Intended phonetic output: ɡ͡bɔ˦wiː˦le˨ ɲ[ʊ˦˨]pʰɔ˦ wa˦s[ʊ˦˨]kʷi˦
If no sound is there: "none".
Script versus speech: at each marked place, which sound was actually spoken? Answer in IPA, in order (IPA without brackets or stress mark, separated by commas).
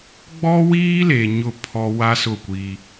ʊ˦˨, ʊ˦˨